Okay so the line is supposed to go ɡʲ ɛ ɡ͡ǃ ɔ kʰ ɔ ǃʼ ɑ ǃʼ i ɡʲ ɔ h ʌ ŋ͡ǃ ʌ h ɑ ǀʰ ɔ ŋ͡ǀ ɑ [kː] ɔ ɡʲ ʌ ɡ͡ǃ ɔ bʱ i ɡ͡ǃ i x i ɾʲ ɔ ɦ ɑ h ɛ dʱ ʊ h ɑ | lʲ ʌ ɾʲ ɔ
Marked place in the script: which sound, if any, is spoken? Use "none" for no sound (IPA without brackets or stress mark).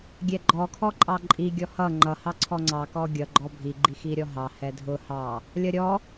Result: k